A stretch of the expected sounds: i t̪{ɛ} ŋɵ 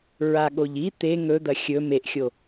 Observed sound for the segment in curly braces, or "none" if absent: e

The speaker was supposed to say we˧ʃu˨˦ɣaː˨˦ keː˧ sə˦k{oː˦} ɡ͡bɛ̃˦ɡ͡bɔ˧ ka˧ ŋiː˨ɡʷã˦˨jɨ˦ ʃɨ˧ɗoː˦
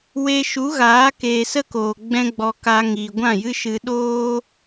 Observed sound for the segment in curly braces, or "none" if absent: oː˨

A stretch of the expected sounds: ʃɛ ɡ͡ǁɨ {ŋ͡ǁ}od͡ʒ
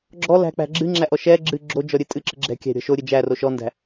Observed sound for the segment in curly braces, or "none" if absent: ɡ͡ǁ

